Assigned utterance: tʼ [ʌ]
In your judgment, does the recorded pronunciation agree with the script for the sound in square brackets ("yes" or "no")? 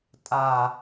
no